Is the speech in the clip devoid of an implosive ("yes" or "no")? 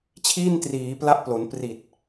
yes